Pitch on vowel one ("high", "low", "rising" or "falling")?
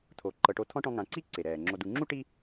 low